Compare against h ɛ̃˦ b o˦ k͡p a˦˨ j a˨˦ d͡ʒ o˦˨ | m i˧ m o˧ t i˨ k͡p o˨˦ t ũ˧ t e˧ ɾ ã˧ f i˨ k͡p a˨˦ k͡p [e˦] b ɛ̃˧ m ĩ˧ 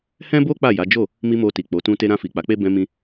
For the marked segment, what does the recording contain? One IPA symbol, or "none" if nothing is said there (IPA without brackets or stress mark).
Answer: e˦